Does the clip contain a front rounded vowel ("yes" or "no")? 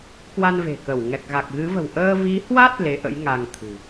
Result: no